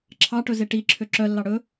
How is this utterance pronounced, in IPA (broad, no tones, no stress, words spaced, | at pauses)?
ǁʰɑʈɵ zeʈiǁʰø ǁœlːɑ ɽɵ